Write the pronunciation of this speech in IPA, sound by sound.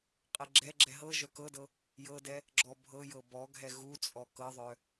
qʼɛɡ͡ǁɛɡ͡ǁɛ ɦɤ ʒœkɤdɤ | jɤdɛ | ɡ͡ǁɔbʱɤjɤ bɔɡʱɛ ɣu t͡sʼɔkɤðˤœ

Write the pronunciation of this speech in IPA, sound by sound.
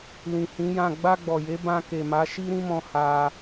lĩ˨hĩ˨˦jã˦˨ ɡ͡ba˧ɡ͡bɔ˨je˨˦ bã˧ke˨ma˨˦ ʃi˦ɾĩ˦mɔ̃˧ ha˧

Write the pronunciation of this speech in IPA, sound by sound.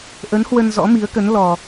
ʔə˨˦n hwə˧nzɔ̰˧˥mi˨˦ə̯kə˨˦n lɔ˧

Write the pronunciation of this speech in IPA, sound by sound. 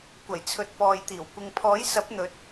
kʷɐ˨˩jt͡sʰɵ˨t̚ pɔː˨jt̪iː˨˩w kʷɪ˨ŋpʰɔː˨˥jsɐ˨˥p̚n̪ɵ˨˥t̚

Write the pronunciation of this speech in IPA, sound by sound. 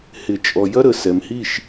hɪ˨t͡ʃʼɔ˨ jɐ˧ɾə˨ sɛ˨mhi˦˨ʃ

